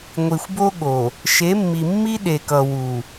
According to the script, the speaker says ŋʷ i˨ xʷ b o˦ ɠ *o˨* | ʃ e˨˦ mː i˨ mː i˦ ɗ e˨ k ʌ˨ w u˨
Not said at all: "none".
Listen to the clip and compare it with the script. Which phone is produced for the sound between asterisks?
o˨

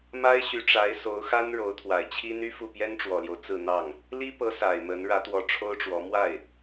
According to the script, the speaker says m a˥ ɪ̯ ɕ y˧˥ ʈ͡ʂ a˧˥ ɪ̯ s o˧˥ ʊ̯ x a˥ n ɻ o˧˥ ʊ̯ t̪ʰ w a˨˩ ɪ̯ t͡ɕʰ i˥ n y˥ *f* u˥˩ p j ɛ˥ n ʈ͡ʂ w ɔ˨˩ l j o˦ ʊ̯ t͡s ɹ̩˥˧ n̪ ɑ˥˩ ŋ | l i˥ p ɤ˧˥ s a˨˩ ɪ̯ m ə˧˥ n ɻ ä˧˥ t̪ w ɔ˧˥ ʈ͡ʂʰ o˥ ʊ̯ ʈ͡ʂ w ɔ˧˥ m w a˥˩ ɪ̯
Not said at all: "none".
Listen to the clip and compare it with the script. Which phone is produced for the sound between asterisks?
f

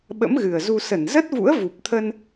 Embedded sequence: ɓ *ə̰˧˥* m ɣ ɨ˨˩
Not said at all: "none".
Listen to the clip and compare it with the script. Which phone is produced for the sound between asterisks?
ə̰˧˥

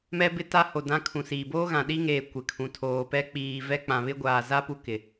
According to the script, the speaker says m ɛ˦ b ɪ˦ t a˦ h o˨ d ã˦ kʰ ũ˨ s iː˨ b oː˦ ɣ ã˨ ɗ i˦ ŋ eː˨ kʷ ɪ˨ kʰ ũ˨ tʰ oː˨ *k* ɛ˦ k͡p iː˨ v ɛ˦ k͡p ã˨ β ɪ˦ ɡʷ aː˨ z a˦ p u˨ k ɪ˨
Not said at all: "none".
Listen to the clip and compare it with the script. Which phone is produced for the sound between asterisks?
p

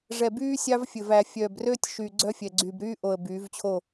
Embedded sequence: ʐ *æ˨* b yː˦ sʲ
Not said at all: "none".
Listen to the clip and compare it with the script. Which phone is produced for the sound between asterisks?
ɛ˨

